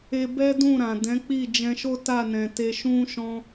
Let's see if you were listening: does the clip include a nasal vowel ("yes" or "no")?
yes